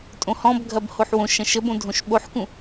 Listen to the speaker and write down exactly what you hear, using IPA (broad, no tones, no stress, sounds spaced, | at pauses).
tʼ õ h ɔ̃ b ɡʱ ɐ b h o ħ w õ ʃ ɐ̃ ʃ ə b õ dʱ õ ʃ ɓ o ħ k ũ